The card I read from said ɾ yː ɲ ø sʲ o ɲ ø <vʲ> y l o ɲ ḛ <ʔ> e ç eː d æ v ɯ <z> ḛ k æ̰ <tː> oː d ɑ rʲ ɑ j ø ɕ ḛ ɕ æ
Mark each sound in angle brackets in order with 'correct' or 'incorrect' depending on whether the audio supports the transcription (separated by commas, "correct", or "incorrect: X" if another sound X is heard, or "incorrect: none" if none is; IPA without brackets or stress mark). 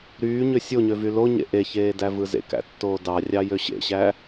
incorrect: v, correct, correct, correct